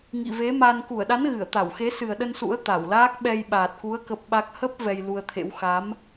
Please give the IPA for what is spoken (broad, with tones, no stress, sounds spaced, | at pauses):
ŋ ḭ˧˨ v e˨˦ m a˧ n k u˧˩ ə̯ ɗ a˨˦ n ɣ ɨ˧˩ ə̯ t̪ a˧˩ w x e˨˦ s ɨ˨˩ ə̯ ɗ ə˧ n s ṵ˧˥ ə̯ t̪ a˧˩ w l aː˦˥ k̚ ɓ ɛ˧ j ɓ aː˨˩ t̚ k u˨˦ ə̯ k ə˦˥ p̚ ɓ a˦˥ k̚ h ə˦˥ p̚ v ɛ˧ j l u˧ ə̯ t̪ʰ ḛ˧˥ w x a˨˦ m